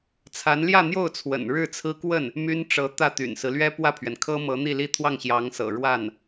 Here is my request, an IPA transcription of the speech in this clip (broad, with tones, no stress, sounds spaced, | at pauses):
t͡sʰ a˧˥ n l j ä˥˧ n̪ j o˥˩ ʊ̯ t͡sʰ w ə̰˨˩ n ɻ ɻ̩˥˩ t͡sʰ ɹ̩˥ k w ə˥˩ n | m y˥ n ʈ͡ʂ ɤ˧˥ t̪ ä˥˩ t̪ y̰˨˩ n s ɹ̩˦ l ɥ ɛ˥ p w ä˥˩ pʰ ɥ ɛ˩ n kʰ ɤ˥ m ɤ˧˥ n̪ i˥˧ l i˥˧ t̪ʰ w ɑ˥˩ ŋ ɕ j ɑ˧˥ ŋ s ɤ̰˨˩ ɻ w a˥˩ n